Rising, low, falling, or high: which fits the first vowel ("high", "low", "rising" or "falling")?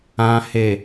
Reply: low